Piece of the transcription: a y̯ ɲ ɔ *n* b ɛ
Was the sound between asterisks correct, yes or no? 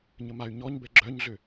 no